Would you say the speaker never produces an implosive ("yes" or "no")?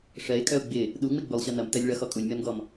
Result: no